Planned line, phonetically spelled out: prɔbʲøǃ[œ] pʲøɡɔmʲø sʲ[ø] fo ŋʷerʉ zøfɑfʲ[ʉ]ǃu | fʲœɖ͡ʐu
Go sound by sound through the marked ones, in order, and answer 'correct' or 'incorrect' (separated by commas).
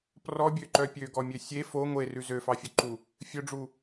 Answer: correct, incorrect, correct